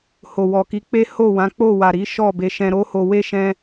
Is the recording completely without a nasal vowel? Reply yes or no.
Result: no